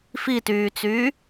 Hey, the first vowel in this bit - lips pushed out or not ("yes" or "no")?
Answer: no